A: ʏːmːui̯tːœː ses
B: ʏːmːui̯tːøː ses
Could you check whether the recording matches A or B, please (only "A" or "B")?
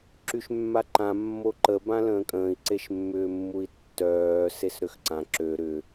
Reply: A